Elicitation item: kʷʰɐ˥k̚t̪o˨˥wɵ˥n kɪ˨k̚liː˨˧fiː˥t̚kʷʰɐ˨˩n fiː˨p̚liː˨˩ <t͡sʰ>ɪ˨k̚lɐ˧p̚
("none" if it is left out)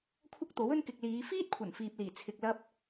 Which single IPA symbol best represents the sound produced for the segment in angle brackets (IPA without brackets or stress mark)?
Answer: t͡sʰ